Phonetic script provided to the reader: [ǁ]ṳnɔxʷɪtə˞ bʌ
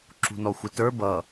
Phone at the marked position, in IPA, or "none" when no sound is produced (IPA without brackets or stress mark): ǁ